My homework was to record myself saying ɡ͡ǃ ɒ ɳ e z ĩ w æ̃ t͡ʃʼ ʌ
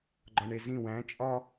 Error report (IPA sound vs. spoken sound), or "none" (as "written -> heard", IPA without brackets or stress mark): ʌ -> ɒ